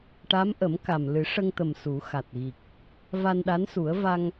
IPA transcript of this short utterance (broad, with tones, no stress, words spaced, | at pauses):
ʈa˧˥mʔə˨˩˦m ka˨˩m lɨ˨˩˦ ʂə˧ŋt̪ə˨˩m su˨˩˦xa˨˩t̚ɣi˨˩k̚ | va˧nɗa˧˥nsu˨˩˦ə̯ va˧ŋ